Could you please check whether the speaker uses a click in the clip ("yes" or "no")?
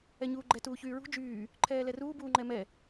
yes